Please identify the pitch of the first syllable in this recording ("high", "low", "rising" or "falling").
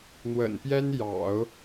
low